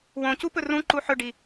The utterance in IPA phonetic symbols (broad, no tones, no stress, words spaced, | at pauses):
wõcu pɵrũǃu ħɵɖi